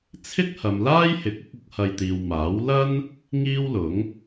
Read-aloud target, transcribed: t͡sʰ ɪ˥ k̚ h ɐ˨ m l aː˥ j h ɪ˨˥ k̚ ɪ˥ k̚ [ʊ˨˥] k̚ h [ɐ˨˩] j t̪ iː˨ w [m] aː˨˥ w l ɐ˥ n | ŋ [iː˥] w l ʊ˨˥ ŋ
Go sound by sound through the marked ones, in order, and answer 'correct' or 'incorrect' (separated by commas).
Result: correct, incorrect, correct, correct